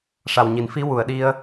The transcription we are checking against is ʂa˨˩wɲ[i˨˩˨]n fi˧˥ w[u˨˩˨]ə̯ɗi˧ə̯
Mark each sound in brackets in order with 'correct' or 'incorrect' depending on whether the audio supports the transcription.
correct, correct

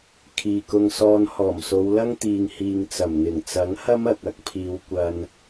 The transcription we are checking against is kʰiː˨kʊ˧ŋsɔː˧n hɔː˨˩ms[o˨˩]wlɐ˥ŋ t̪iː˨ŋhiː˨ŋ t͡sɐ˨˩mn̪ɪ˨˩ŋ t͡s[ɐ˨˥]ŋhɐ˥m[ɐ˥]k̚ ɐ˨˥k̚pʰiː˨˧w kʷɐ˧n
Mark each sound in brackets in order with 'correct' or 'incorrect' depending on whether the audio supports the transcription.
incorrect: o˨˧, correct, incorrect: ɐ˨

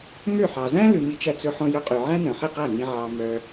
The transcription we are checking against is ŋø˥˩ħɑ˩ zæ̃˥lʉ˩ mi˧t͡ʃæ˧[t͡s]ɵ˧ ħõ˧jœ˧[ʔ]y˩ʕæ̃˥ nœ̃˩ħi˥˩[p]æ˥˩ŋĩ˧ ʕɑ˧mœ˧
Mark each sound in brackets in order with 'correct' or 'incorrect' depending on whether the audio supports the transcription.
correct, incorrect: qʼ, incorrect: q

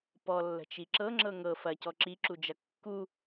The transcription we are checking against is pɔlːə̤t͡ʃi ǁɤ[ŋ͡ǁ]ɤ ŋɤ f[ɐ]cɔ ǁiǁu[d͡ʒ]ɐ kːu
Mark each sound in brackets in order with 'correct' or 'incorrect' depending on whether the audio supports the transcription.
correct, correct, correct

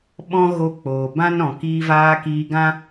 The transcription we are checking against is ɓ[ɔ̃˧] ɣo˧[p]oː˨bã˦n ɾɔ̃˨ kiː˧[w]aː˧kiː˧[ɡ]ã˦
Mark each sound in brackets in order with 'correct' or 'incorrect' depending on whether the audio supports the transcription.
correct, incorrect: k͡p, incorrect: v, correct

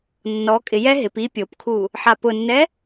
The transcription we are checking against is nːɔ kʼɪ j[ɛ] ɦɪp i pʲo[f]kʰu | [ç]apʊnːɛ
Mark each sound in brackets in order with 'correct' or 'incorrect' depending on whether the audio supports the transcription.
correct, incorrect: p, incorrect: ħ

